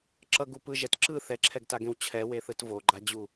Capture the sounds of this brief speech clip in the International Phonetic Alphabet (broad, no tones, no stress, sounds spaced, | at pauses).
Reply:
ǁ ʌ ɡ u p ɯ ʒ ɛ t ǁ ɯ θ ɛ ǁʰ ɛ ɡ t a ɡ ẽ w t͡ɕʰ ɛ w e θ ɯ t v o ɡ͡ǃ a d͡ʑ u